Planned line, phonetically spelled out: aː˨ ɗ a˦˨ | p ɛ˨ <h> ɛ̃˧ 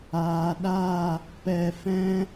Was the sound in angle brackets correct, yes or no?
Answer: no